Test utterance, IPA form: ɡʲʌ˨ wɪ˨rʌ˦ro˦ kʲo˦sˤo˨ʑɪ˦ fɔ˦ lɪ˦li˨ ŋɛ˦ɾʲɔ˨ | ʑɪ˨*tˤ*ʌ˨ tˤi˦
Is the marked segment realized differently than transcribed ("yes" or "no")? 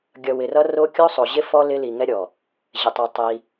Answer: no